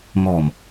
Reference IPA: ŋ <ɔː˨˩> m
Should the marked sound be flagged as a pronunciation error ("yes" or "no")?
no